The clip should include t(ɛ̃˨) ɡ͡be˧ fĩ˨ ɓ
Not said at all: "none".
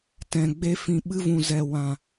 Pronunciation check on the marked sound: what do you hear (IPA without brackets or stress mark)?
ɛ̃˨